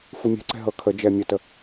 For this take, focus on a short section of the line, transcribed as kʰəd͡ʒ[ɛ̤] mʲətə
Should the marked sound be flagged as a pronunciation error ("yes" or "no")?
yes